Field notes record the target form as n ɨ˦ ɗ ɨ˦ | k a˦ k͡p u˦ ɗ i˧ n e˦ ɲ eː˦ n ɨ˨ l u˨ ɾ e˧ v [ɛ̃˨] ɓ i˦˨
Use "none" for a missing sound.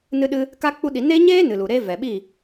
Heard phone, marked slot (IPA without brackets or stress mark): ɛ˨